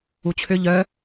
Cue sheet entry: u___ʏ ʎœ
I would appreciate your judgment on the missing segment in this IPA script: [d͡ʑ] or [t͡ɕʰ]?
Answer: t͡ɕʰ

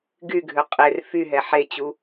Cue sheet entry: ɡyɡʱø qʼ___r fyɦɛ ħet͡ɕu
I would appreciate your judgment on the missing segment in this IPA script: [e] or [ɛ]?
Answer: e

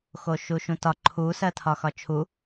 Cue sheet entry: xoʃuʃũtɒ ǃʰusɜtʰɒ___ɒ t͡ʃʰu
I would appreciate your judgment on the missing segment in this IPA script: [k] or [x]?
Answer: x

